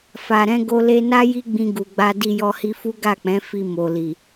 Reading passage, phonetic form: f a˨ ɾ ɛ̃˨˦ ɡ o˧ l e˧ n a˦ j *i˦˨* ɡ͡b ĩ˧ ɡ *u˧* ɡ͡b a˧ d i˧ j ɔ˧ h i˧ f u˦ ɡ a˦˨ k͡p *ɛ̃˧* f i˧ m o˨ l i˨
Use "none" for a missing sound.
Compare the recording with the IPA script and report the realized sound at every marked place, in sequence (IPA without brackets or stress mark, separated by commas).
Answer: i˦, u˨, ɛ̃˨˦